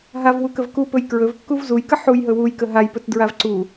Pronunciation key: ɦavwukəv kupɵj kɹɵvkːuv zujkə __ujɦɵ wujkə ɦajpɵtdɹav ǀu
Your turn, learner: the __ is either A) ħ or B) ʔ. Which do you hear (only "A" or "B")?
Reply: A